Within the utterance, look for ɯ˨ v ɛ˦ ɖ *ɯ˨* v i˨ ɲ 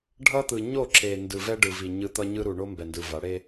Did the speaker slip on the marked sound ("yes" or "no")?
no